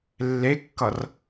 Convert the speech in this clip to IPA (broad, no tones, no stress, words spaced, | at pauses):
lːekːʌr